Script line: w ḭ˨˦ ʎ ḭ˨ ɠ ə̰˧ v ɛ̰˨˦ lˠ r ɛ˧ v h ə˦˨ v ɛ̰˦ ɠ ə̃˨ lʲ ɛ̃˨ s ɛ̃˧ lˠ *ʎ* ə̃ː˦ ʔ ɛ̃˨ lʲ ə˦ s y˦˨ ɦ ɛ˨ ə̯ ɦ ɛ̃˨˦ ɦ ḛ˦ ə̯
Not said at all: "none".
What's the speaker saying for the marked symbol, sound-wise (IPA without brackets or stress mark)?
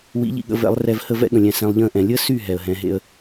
ʎ